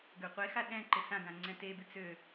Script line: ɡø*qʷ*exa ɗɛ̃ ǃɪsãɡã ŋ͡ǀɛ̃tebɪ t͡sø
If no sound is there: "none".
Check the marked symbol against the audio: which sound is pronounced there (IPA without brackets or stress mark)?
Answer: qʷ